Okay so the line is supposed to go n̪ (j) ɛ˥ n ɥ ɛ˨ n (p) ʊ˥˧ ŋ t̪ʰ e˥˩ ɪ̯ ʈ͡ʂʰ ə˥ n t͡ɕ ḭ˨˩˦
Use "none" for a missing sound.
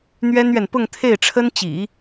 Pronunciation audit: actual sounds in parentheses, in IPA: ɥ, p

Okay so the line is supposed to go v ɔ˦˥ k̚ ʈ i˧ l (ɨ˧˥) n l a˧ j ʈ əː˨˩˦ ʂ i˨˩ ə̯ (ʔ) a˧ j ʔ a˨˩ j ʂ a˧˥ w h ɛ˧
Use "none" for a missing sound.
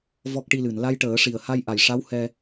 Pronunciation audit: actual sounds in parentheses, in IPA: ɨ˨˩˨, h

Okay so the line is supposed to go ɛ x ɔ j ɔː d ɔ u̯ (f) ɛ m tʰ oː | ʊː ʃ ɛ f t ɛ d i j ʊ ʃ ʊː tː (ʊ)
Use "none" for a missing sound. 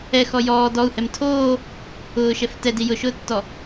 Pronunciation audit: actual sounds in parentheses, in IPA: h, ɔ

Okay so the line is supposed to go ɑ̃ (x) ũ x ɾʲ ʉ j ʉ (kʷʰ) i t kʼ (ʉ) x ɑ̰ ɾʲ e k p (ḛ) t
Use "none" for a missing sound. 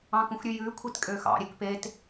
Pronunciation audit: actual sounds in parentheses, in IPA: k, kʷʰ, ø, e

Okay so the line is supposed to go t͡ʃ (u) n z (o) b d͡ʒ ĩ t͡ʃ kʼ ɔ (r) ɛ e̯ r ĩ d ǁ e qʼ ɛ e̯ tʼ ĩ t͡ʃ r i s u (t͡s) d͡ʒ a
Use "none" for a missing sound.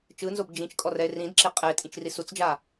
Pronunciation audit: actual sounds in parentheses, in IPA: ɯ, o, r, t͡s

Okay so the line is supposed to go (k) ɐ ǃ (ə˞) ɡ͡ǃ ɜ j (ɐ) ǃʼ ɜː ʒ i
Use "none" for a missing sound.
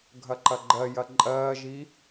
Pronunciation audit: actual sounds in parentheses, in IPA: ɡʱ, ɐ, ɐ

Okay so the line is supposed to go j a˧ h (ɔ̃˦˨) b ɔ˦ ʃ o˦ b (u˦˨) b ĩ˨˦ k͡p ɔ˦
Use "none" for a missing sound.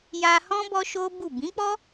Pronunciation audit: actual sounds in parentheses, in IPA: ɔ̃˦, u˦˨

